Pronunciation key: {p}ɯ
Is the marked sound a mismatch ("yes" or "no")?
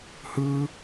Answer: yes